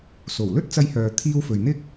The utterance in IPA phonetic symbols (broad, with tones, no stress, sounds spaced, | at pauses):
s o˨˩ w l ɵ˥ t̚ t͡s ɐ˧ j h œː˨ t̪ʰ iː˧ w f ɵ˨ ɥ n̪ ɪ˥ k̚